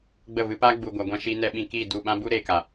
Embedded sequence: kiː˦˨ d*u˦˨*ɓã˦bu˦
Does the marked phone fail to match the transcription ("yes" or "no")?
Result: no